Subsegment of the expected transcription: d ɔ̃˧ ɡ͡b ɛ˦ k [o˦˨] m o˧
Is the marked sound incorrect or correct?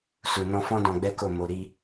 correct